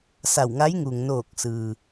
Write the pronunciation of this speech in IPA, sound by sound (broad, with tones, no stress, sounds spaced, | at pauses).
s a˧˩ w ŋ a˧˥ j ŋ u˩ ŋ n oː˧˩ k̚ s ɯː˩